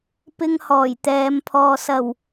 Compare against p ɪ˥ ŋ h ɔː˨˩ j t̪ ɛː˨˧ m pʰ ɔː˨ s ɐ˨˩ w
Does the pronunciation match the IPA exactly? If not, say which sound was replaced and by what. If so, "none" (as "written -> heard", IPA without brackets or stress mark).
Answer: none